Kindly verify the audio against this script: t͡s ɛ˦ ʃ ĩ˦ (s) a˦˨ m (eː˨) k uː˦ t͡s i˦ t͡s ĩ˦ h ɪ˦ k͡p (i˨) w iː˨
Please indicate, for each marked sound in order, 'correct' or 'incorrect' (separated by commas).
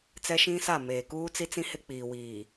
correct, correct, incorrect